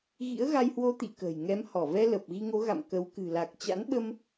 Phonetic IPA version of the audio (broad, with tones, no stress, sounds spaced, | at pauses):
ɣ ḭ˧˥ ə̯ ɣ a˧ j h w o˧ t̪ ḭ˧˨ k ə̤ː˨˩ j ŋ ɛ˨˦ m h ɔ˧˩ v ɛ˧ l ə˨˩ p̚ ɣ i˧ ŋ o˨˦ ɣ a̰˧˨ m k ə˨˦ w k ɨ̤˨˩ l a˨˩ k̚ t͡ɕ a̰˧˥ n ɓ ə˧ m